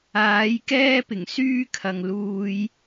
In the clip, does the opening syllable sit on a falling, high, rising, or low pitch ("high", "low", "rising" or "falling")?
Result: rising